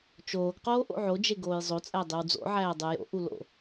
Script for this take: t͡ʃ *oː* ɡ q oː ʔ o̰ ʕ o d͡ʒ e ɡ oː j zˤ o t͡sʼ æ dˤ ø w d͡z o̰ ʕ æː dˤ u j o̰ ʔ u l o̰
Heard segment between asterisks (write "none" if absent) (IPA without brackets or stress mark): oː